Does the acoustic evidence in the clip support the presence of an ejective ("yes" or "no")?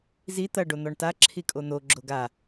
yes